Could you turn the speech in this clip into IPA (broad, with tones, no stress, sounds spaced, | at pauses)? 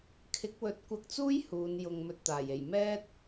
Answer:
kʰ ɪ˨˥ k̚ w ɵ˨˥ t̚ kʷ ɐ˧ k̚ t͡s uː˥ j h uː˨˧ n j ʊ˨ ŋ m ɵ˧ t̚ t̪ aː˨˩ j e˨˩ j m ɛː˥ t̚